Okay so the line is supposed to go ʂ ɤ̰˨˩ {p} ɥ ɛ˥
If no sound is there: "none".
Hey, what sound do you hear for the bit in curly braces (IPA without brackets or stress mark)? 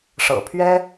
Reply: pʰ